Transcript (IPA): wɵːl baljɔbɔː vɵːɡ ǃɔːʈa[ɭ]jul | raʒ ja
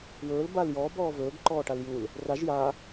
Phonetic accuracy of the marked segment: incorrect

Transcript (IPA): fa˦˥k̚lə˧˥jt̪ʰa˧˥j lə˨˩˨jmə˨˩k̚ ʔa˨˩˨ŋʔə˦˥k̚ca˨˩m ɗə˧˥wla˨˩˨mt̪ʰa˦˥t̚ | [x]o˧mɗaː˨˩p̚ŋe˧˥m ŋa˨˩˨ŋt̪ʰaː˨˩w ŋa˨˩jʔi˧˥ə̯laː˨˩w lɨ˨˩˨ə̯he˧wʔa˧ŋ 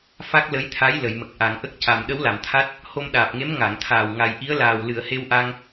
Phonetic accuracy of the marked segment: incorrect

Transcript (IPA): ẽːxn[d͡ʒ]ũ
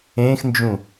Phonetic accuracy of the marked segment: correct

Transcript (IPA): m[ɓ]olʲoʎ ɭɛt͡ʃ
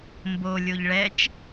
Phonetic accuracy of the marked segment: incorrect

